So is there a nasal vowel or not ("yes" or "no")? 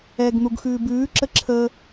no